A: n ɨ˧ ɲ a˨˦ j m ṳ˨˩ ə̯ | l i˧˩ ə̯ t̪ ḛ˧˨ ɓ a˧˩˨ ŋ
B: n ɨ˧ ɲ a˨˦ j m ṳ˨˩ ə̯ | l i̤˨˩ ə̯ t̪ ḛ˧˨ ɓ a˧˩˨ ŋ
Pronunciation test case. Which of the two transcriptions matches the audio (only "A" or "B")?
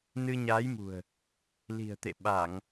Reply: B